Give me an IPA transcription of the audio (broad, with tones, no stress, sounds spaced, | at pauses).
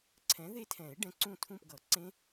ǀʰ ɛ̃˨˥ ð e˦˥ tʰ ɛ̃˨˩˦ ɪ̯ ɖ ɛ̃˨˥ ǀ ũ˦˨ tʰ ũ˦˨ p ɡ ʌ˨˩˦ ǀ ẽ˦˥